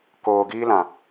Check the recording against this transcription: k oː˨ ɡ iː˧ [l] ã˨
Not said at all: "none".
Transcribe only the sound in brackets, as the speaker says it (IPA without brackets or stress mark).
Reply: l